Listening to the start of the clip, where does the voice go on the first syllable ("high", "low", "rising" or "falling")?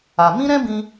low